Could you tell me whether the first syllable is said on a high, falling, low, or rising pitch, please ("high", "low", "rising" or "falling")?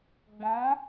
rising